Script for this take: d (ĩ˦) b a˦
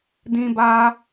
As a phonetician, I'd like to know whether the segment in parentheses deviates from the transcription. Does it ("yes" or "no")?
no